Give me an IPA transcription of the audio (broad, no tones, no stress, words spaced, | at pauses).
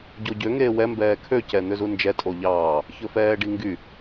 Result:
ɟoɟø ŋeːwɛ mbɛːkʰø cɛn̪øzund͡ʒɛ tʼoʎɑː | çɵfɛːɖiŋɡy